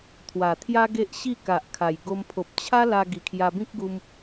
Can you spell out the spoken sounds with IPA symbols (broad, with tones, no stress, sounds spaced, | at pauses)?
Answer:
t̪ʰ w a˨˩ t̪ʰ j a˦ ɡ e˦ ʔ ɕ i˥˧ k a˨ ʔ kʰ a˨˩ j ɡ o˧ m pʰ o˨ p̚ t͡ɕʰ a˦ l a˧ ɡ i˨˩ kʰ j a˧ b ĩ˦ k̚ ɡ u˧ m